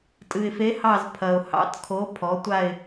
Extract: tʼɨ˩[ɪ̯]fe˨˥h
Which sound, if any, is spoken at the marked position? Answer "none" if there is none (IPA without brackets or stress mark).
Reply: ɪ̯